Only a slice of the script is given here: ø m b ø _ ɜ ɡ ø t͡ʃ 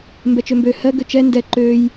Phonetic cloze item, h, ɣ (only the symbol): h